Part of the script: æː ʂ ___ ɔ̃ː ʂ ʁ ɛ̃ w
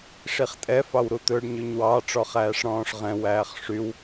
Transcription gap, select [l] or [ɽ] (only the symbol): ɽ